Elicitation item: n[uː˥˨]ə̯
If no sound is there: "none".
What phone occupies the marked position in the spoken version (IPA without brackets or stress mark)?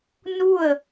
u˥˨